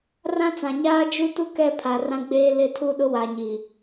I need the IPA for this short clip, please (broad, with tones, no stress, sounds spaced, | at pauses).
r ã˦ t͡s ã˨ ɲ aː˦ d͡ʒ u˦ t u˦ k ɛ˦˨ pʰ a˨ r ã˦ ɡ͡b eː˦ l ɪ˦˨ tʰ u˦ ɗ ʊ˦ w a˨ ɲ i˨